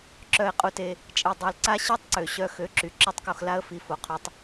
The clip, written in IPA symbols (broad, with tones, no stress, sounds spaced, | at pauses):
ǁ œ˧ ɪ̯ qʼ u˧ t e˧ | t͡ʃʼ e˧ dˤ œ˧ l ǀ a˦ ɕ i˦ tˤ ǀ ø˨ ɕ œ˧ x ø˨˦ ǁ y˨ ǁ œ˦ tˤ k o˧ x l a˦ ə̯ f i˨ f o˨ qʰ y˧ tˤ